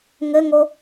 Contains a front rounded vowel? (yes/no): no